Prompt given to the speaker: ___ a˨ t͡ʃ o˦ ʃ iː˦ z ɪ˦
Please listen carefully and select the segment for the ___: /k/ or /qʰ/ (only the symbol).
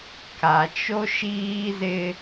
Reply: k